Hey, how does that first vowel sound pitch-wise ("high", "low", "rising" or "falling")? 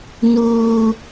high